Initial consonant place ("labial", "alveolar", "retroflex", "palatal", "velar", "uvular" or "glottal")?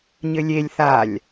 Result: palatal